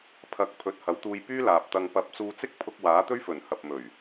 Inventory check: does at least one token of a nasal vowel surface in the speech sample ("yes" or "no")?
no